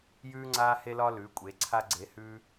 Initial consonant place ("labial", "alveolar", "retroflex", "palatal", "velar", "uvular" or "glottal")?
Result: palatal